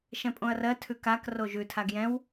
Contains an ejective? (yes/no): yes